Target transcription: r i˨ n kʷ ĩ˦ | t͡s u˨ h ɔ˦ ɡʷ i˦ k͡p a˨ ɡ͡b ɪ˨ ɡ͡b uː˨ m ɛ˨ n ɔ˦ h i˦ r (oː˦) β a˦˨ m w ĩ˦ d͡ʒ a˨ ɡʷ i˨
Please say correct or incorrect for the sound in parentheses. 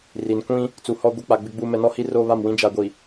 correct